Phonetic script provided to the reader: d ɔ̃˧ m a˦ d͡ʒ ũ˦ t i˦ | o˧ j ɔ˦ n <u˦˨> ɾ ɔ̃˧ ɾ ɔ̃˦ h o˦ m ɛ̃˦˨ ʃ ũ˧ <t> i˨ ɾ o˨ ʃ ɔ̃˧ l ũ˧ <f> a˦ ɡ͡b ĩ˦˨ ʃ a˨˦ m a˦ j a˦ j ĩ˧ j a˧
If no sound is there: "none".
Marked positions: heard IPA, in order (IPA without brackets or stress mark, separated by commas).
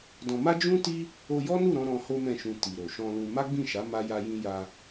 u˦˨, t, m